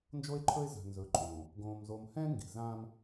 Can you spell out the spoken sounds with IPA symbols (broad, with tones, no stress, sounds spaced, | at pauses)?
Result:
n d͡ʒ o˦ e̯ ǃʰ ɵ˦ e̯ z a̤˨ n z ɵː˨ ǃʼ õː˨ | ɡ õː˨ m z o˨ m h ɛ̃˦ ŋ ɡ i̤˨ z ãː˦ m